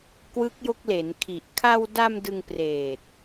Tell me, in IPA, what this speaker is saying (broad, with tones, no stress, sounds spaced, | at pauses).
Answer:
k w ɯ˦˥ k̚ j o˦˥ k̚ l e˩˦ n kʰ i˨˩ ʔ kʰ a˧ w d a˧ m d ɯ˧ ŋ p r eː˨˩ t̚